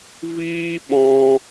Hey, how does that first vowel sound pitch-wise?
high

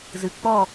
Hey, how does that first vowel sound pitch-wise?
low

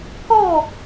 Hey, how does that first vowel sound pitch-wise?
falling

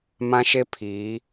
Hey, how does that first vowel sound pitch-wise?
high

